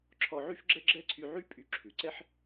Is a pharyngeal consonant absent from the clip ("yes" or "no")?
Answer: no